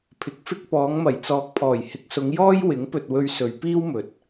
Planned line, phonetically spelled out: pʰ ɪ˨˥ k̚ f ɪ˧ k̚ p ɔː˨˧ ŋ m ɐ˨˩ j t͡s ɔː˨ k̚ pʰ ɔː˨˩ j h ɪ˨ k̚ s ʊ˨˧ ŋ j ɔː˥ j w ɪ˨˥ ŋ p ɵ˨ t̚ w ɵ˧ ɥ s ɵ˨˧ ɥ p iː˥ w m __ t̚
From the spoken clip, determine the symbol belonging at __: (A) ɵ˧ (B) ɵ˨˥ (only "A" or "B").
B